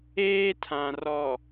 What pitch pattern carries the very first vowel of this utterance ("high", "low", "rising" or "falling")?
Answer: high